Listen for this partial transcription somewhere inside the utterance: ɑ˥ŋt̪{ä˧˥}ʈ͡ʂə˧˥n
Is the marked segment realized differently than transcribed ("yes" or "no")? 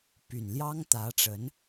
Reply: no